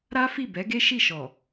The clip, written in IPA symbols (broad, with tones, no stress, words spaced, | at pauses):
ɾa˦fi˦˨ bɛ˨˦ɡe˦ʃi˦˨ʃɔ˨